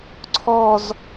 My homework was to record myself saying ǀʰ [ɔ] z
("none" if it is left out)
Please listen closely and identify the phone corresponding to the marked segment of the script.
ɔ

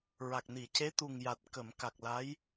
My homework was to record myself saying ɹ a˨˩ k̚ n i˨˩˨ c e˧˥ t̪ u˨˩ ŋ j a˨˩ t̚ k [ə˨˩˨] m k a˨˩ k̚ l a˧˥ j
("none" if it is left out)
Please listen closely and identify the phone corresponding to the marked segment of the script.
ə˨˩˨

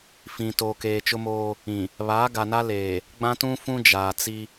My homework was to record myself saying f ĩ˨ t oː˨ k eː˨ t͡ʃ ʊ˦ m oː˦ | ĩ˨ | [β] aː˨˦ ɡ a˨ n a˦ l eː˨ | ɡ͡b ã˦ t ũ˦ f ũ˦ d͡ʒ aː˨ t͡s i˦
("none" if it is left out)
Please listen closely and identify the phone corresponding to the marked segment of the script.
β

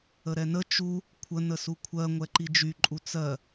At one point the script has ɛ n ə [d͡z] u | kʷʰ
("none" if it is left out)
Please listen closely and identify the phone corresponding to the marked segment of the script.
t͡ʃ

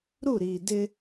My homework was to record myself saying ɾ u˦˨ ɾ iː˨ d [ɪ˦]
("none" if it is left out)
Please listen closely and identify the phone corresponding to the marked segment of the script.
ɪ˦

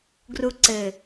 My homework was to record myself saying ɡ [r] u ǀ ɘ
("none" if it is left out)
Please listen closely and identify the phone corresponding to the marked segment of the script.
r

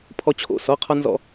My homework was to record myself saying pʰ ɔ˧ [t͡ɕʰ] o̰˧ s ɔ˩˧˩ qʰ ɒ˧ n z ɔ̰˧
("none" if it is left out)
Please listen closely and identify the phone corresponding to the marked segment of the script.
t͡ɕʰ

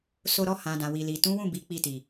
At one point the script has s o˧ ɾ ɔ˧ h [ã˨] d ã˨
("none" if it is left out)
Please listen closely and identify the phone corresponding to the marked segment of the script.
ã˨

